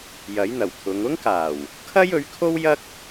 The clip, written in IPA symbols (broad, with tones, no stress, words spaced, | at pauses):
jɐ˨˥jn̪ɐ˨˩wt̪ʰʊ˨˧ŋ ʊ˥ŋkaː˨˩w | kʰɐ˥jɵ˨˥ɥkʰo˥w jɐ˥k̚